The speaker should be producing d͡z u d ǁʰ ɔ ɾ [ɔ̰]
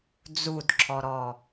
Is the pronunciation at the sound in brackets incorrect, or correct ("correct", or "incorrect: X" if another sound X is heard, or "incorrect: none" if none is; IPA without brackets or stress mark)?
incorrect: ɔ